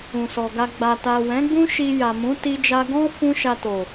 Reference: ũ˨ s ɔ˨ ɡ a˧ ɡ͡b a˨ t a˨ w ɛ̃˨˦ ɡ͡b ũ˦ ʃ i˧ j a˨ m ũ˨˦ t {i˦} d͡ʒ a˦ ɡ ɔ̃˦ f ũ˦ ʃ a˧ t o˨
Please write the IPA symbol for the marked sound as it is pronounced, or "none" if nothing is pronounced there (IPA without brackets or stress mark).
i˦